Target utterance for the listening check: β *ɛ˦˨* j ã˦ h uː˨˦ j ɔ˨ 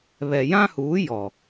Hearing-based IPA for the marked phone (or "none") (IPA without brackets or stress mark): ɛ˨